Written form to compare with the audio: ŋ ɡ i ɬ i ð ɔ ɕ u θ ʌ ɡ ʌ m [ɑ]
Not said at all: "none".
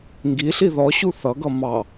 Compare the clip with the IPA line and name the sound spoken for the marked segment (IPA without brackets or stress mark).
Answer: ɑ